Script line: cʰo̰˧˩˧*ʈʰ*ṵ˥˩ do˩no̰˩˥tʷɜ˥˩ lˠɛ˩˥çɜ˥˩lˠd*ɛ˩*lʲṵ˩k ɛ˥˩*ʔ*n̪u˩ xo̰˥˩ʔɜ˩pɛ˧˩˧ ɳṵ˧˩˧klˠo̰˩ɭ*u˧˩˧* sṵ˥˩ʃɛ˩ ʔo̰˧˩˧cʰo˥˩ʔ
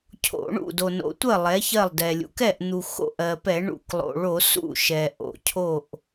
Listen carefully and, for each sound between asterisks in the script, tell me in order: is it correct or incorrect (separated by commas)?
incorrect, correct, correct, incorrect